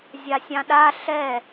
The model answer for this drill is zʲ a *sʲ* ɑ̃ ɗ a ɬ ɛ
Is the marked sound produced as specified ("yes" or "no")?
yes